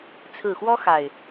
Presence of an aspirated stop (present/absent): present